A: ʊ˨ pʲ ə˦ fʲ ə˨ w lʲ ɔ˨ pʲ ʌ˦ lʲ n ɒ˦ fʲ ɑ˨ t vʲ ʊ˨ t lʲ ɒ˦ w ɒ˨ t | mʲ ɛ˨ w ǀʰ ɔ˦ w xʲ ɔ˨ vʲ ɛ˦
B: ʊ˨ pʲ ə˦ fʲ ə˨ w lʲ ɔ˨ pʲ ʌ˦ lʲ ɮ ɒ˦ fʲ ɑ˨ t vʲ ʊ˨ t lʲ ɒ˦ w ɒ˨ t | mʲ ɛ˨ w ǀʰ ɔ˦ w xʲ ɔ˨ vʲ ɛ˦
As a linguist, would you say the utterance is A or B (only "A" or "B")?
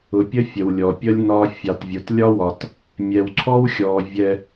A